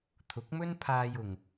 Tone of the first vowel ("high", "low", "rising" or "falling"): rising